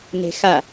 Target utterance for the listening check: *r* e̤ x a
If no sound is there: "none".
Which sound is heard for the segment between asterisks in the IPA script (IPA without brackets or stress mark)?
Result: n